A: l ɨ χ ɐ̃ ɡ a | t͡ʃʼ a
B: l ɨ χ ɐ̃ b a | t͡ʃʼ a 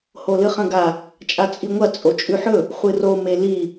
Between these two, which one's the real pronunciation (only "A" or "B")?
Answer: A